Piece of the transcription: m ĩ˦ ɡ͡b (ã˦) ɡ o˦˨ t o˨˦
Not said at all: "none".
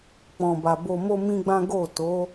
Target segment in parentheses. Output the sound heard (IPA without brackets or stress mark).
ã˦